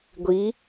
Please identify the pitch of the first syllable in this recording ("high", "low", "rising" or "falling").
rising